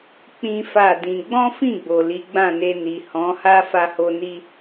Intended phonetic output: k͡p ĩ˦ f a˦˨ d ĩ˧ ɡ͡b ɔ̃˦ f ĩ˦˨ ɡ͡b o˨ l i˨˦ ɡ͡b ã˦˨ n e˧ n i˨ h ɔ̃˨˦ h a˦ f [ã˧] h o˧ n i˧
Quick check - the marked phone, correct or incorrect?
incorrect